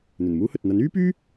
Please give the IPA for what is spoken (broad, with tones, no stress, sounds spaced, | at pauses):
n̪ ɵ˨˩ n m uː˥ h ɵ˨ t̚ n̪ ɐ˨˥ n yː˥ p yː˥